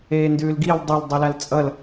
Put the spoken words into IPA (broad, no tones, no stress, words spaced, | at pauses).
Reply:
eːndʉːlɡil dˤol dˤilalt͡sʼʌl